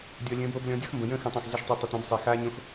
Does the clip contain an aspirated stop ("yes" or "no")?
no